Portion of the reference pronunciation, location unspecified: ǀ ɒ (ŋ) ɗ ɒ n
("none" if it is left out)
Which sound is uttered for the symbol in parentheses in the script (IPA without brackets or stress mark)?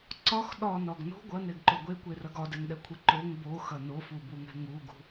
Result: x